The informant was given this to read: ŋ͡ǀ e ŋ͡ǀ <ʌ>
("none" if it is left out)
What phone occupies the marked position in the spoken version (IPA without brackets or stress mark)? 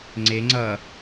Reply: ʌ